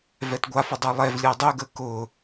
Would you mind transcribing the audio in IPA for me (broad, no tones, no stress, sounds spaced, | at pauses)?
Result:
v ɛ t ɡʷ a f ʊ dˤ œ lˠ ɛ v lʲ əː dˤ ø ɡ əː k ʊ